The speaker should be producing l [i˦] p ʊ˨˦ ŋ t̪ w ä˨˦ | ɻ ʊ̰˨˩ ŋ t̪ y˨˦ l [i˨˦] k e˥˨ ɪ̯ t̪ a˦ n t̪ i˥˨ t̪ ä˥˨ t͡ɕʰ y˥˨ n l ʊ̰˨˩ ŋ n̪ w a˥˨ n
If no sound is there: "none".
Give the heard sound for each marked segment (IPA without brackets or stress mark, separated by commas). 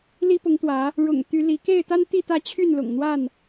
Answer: i˦, i˨˦